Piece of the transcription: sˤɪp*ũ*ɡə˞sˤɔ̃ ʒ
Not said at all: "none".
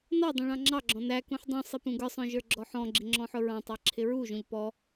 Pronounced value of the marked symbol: ũ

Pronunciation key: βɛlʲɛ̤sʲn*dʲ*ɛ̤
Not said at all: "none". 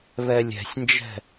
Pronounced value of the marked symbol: d͡ʒ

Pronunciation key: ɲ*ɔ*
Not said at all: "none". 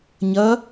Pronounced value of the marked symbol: ʌ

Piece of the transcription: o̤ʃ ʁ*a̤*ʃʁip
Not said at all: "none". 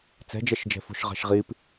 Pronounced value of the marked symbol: a̤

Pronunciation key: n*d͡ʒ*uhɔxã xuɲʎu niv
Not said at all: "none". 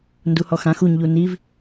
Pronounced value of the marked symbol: d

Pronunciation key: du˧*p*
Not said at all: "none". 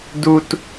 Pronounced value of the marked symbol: t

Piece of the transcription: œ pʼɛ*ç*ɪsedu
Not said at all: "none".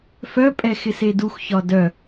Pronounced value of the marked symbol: x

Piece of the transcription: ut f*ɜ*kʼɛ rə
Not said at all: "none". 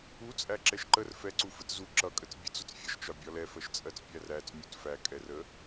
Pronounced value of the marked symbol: æ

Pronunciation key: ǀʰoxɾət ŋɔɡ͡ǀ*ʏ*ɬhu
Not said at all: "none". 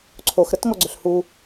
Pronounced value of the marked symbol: ʏ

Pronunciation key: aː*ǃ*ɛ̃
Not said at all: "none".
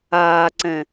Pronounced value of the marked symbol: ǀ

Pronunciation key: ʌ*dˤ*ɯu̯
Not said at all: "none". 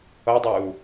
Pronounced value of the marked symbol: dˤ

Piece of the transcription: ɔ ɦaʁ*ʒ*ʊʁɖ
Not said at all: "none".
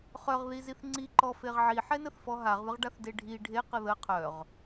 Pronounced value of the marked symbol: ð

